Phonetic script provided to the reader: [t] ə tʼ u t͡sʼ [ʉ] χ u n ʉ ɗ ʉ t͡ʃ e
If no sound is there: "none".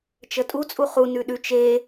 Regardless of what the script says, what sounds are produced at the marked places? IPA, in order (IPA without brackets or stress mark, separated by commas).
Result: t͡ʃ, u